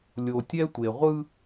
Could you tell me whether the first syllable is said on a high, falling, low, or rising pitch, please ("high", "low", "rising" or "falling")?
low